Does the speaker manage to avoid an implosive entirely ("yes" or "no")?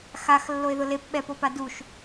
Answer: no